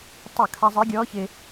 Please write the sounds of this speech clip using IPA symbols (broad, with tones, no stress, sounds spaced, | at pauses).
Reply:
tˤ ʊ˧˩˧ kʰ a˧ zˤ ɪː˧˥ ɡʲ ɔː˧˥ ç ɪː˧